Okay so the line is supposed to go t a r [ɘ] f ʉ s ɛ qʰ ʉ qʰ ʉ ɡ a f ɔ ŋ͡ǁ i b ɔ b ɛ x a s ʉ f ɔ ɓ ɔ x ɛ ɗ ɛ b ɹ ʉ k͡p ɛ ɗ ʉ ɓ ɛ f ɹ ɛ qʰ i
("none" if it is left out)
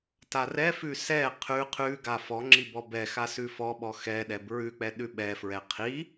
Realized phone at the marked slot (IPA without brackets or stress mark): ɛ